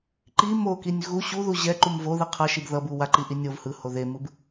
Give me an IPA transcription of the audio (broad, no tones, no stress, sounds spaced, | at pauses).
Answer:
ǃ i m o k i nʲ ɣ u ɕ u ð u ʑ ɛ ǃ u m v o ð ɯ qʰ ʌ ʃ i b ð ʌ b u w a ǃ i ʔ i nʲ o v h ɯ h o ð e m ɯ b